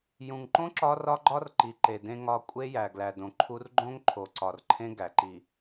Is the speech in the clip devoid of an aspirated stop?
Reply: no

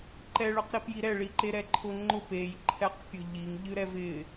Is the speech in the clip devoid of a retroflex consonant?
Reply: no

